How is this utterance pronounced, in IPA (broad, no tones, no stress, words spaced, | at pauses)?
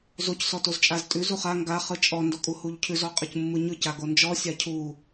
zoc sɔtozt͡ʃʼaztʼʉ zuχa ŋɡa χɯt͡ʃʼɔ ndɔkʼuhuʎcʰʉz ɔqʼɯcmːɯɲɯ caɡond͡ʒɔ sʲacʰu